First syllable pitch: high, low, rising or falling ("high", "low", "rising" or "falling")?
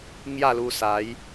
falling